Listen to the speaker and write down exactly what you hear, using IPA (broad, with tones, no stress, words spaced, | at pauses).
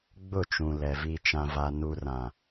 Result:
ɡ͡bʊ˦˨t͡ʃũ˨lɛ˨ vi˨t͡ʃã˨va˨ nu˨rã˨